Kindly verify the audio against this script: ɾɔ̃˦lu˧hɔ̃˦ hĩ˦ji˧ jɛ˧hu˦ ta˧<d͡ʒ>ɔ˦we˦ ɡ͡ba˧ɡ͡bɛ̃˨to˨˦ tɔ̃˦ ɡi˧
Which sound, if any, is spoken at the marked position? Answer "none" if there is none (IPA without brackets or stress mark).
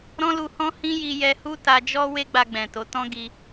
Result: d͡ʒ